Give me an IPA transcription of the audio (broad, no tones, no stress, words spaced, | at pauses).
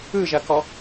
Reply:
ɯʒɐkɔ